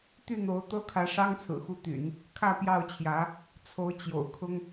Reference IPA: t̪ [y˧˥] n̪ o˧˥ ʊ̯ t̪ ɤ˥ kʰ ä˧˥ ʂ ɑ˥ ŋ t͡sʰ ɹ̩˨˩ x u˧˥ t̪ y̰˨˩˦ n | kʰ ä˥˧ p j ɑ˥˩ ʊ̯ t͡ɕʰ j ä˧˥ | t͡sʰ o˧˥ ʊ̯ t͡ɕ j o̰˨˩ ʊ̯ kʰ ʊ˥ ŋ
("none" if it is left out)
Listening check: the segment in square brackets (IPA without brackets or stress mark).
y˥˩